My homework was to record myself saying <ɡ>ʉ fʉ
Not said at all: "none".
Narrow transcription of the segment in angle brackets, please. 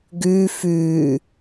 ɡ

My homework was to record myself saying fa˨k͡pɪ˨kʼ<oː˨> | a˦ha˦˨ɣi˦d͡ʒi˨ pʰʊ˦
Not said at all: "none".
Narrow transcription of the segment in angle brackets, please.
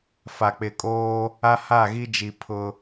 oː˦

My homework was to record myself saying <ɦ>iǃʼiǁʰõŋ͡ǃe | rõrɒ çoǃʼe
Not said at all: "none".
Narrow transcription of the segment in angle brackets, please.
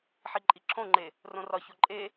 ħ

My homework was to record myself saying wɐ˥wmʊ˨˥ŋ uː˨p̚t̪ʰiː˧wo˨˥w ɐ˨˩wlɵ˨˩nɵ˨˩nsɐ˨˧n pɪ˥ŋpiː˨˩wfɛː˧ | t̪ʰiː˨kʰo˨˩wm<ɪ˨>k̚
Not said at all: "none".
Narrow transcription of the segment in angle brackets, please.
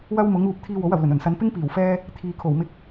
ɪ˧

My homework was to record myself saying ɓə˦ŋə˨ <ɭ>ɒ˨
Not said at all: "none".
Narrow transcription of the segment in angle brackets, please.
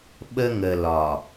l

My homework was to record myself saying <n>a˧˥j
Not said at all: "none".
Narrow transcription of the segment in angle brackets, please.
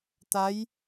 t̪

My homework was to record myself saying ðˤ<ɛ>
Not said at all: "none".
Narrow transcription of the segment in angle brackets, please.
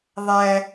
æ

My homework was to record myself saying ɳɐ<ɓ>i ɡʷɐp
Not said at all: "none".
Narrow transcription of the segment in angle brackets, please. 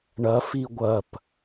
f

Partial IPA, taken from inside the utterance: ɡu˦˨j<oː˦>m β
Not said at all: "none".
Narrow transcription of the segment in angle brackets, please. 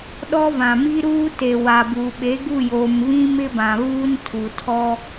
oː˨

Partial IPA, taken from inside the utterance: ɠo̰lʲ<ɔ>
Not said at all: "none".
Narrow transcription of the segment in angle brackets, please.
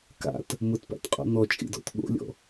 ɔ̰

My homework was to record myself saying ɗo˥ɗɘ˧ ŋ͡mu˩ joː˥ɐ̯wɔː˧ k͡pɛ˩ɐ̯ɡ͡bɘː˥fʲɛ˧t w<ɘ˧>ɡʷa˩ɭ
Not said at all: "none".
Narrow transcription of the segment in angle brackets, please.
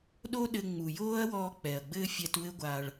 ɘ˧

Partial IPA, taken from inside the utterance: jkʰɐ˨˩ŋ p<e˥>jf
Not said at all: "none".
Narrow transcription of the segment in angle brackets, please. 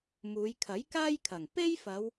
e˥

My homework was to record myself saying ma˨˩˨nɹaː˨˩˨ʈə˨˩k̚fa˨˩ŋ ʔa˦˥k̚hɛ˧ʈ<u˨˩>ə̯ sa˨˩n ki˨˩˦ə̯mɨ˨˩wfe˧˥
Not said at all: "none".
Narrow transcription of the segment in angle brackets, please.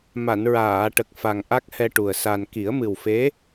u˨˩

